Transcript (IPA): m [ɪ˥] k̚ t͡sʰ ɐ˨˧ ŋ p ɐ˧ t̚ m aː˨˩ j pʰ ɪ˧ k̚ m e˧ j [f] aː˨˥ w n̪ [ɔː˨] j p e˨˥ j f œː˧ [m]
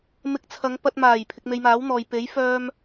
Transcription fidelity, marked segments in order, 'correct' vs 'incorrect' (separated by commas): incorrect, incorrect, correct, correct